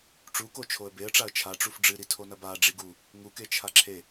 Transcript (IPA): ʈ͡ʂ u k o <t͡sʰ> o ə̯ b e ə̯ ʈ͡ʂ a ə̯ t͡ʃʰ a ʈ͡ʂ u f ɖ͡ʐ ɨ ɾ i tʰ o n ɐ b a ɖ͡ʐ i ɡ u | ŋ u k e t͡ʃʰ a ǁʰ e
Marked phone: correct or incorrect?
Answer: incorrect